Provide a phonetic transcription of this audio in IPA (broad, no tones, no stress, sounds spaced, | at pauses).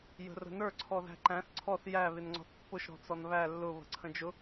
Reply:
j ə̤ r ə̤ n ə˞ ǀʰ ɔ ð æ̤ ǃ æ̃ θ ǀʰ ɔ θ j æ β ɪ n ŋ͡ǀ ɔ̤ θ pː ʊ ʃ ɾ ɔ̤ t͡s ɔ n β æ lː ʊ β ə̤ ǀʰ ə̃ d͡ʒ ʊ